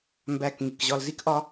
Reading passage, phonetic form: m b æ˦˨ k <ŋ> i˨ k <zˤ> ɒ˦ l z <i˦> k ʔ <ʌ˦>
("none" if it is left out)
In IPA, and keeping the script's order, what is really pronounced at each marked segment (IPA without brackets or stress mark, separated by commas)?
ŋ, ʑ, i˦, ɒ˦